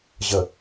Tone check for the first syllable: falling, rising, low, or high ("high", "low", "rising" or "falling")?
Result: low